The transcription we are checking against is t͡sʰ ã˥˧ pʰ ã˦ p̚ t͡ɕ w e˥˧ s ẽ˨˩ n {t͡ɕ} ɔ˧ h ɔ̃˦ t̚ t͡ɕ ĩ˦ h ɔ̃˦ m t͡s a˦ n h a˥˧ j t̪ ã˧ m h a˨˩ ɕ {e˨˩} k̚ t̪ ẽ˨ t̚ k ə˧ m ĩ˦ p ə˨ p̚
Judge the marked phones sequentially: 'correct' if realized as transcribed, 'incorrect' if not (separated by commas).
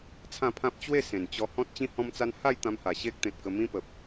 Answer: correct, incorrect